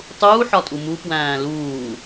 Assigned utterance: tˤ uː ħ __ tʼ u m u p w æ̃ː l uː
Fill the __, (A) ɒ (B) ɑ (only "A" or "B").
A